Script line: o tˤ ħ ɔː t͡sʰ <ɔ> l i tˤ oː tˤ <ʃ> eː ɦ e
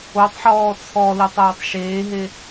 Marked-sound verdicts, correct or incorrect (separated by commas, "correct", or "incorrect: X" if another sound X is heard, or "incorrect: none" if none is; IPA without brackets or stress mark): correct, correct